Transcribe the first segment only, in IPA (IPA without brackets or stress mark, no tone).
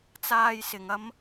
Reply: t͡s